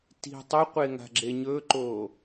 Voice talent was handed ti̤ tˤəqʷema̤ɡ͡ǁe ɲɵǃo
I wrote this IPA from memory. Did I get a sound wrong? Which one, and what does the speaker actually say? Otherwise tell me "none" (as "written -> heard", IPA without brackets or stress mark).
m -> ŋ